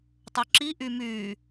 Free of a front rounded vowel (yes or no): no